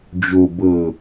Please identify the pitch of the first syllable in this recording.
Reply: low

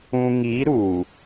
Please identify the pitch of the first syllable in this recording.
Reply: low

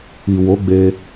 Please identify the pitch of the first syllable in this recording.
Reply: low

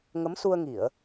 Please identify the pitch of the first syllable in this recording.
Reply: rising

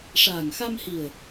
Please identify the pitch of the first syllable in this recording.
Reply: low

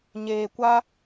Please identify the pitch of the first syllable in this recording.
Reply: low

